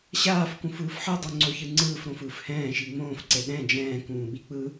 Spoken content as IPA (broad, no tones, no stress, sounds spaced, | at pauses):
ɕ aː f k ũ f ɯː f ħ ɯ dˤ u ŋ͡ǀ o ç ɯ ŋ͡ǀ ɯː f ɾ õ f ɯː f h ɛ̃ː ʃ i ŋ͡m õː f ǀ e ɗ ɛ̃ d͡ʒ ɛ̃ː k ũː ɓ i k͡p ɯ